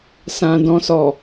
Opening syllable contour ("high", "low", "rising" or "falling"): low